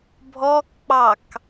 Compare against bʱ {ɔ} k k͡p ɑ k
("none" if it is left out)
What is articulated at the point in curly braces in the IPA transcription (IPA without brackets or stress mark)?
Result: ɔ